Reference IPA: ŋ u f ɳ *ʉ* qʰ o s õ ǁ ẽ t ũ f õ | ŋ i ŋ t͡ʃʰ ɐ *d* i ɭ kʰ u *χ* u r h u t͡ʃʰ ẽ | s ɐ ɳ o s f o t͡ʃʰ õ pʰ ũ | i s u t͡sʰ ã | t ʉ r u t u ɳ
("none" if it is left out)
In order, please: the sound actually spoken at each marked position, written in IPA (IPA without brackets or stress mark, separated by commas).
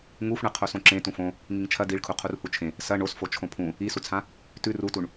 ɨ, d, qʰ